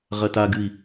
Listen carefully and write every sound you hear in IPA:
ʁ ɐ t a ɡ ɨ i̯

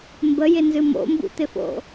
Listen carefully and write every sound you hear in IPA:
m b ə j ɪ n z ɨ m o̰ m b ṵ t̪ ɪ f o̰

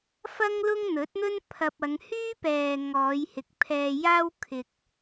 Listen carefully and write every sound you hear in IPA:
f ɐ˥ ŋ l ʊ˥ ŋ n̪ ɵ˨˥ t̚ n̪ ɵ˥ n pʰ ɐ˧ p̚ ɐ˨˧ ŋ h yː˥ p ɛː˨ ŋ ɔː˨˧ j h ɪ˨ k̚ pʰ ɛː˧ j aː˥ w kʰ ɪ˧ k̚

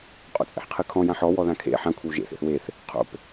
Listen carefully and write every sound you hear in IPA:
qʼ o̰ t͡sʼ ḛ ħ qʰ ɨ kʰ ɔ̃ j ã ħ ɔ w ɔ ð ã kʰ ḛ ħ ã kʷʰ ɘ w ʒ ḛ θ ḛ θ w e θ | qʰ o̰ p

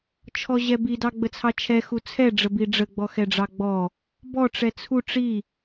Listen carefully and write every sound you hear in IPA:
t͡ʃʰ ɔ ʑ ɛ b i d ɑ ɡ͡b ə t͡sʰ ɑ t͡ʃʰ ɛ x u t͡sʰ ɛ ɖ͡ʐ ə b i ɖ͡ʐ ə ɡ͡b ɔ x ɛ ɖ͡ʐ ɑ ɡ͡b ɔ | b ɔ ʈ͡ʂ ɛ t͡sʰ u ʈ͡ʂ i

